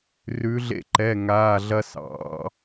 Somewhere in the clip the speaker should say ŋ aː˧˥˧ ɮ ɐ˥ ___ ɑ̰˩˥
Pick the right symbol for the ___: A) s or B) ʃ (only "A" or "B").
A